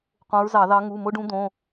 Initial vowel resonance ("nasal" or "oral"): nasal